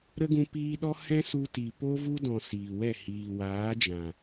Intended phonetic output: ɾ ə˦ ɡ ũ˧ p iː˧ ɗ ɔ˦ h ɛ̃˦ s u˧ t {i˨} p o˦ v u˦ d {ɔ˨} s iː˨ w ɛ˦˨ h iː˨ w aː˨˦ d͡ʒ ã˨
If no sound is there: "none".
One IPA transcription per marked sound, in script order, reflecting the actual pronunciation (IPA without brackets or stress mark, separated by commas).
i˨, ɔ̃˨